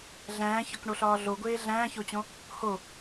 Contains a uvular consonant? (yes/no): no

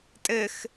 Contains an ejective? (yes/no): yes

